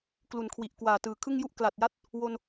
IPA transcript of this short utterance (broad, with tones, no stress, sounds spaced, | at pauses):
k l u˨˩ n kʰ w i˨˩ ʔ k w aː˨˩ t ɯː˨˩ kʰ ɯ˥˩ ŋ j u˥˩ ʔ k l a˨˩ t̚ j a˥˩ t̚ | w o˧ n